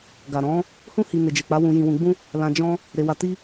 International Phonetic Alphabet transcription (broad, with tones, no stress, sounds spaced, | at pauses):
ɡ a˨ ɾ ɔ̃˨˦ | h ũ˦ h i˧ n e˨ d͡ʒ e˨ k͡p a˨˦ w ũ˧ j ĩ˧ w ũ˧ ɡ͡b ũ˦ | l ã˧ d͡ʒ ɔ̃˧ | ɾ e˧ w a˧ t i˦